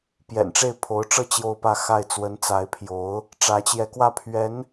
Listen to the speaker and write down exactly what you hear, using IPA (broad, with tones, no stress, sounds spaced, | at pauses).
p j ɛ̰˨˩ n ʈ͡ʂ e˥˩ ɪ̯ pʰ o˧˥ ʊ̯ ʈ͡ʂ ɤ˥˧ t͡ɕ j o˥˧ ʊ̯ p ä˥˧ x a˥˩ ɪ̯ t͡s w ə˧˥ n t͡s a˧˥ ɪ̯ pʰ j o˧˥ ʊ̯ | ʈ͡ʂ ä˧˥ t͡ɕ j ɛ˧˥ k w ä˥˩ pʰ ɥ ɛ˧˥ n